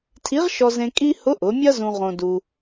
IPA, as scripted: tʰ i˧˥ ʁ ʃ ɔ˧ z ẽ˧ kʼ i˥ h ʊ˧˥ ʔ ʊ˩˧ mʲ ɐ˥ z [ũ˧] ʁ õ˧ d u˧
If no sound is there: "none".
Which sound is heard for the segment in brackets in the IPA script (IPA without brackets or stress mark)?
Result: ũ˧